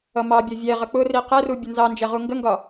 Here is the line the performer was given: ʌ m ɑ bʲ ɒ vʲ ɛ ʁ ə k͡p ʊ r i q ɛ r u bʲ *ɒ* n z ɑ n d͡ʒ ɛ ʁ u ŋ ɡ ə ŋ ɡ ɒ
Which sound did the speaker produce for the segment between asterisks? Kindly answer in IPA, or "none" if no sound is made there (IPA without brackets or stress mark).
ʌ